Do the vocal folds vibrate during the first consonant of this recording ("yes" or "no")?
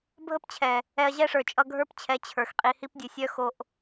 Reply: yes